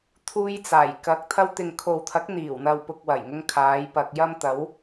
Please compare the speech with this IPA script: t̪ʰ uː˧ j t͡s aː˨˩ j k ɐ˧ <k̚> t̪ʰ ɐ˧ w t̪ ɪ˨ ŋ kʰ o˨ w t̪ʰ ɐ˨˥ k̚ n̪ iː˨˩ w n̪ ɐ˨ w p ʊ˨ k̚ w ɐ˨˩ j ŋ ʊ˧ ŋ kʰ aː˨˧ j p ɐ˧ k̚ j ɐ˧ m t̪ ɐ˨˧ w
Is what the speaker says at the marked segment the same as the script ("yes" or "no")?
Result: yes